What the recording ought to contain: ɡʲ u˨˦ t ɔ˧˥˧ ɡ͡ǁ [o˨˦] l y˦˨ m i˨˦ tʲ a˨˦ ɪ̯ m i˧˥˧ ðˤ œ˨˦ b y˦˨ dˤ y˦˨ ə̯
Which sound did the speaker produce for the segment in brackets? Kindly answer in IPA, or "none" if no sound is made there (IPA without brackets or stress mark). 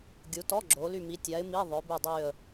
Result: o˨˦